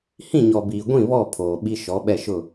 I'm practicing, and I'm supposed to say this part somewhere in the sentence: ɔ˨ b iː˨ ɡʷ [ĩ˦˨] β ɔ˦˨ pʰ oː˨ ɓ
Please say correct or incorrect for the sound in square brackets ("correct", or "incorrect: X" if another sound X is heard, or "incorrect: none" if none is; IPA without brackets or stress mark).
correct